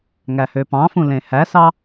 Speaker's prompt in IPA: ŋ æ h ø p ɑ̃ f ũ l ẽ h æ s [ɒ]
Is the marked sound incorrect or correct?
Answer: incorrect